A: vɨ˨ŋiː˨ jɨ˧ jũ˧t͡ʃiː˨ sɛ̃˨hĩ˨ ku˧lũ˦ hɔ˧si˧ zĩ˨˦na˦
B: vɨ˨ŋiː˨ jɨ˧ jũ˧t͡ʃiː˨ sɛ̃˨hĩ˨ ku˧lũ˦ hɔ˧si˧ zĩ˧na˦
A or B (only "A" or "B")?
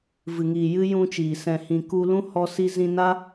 B